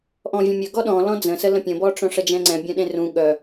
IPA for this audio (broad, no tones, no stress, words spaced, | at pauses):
ʔɔ̃vʲə̃mʲœ ɡɔɗɔ̃ lɔ̃d͡zə̃sə lə̃pʲə̃bɔʈ͡ʂœ̃ ʂəd͡ʒɛ̃ŋ͡ǀɛ̃ bʲœ̃ɗẽrũ ɠœ